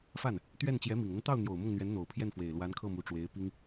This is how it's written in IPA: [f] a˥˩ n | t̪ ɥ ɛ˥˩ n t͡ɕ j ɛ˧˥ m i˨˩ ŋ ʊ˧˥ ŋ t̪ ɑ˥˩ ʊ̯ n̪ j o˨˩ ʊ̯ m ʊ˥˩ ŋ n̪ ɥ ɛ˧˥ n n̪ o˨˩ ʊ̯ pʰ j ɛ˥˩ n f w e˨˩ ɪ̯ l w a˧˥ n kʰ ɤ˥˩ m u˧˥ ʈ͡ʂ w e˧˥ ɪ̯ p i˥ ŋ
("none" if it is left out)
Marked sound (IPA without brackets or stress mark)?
f